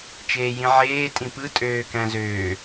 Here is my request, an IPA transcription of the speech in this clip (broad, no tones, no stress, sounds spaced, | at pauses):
t͡ʃ eː j ĩ ʕ eː tʼ ĩ p ɯ tʼ øː k æ̃ z øː